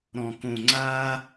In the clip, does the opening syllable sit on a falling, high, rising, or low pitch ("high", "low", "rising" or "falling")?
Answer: high